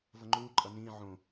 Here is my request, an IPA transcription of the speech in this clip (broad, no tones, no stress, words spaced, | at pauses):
vʌŋ͡ǃuː ǃʼʌnĩː ʕõ